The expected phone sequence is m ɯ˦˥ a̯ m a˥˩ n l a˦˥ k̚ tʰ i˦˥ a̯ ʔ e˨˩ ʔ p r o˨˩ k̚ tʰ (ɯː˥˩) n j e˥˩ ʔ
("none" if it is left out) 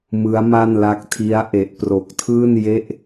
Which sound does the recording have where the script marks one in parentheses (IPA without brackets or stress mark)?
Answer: ɯː˥˩